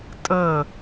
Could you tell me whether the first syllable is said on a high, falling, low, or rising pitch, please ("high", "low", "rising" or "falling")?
falling